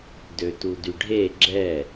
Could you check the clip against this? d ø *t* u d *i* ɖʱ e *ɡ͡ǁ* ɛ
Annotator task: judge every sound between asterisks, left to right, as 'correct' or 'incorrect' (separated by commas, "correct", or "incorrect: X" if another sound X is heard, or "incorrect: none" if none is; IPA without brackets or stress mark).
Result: correct, incorrect: y, correct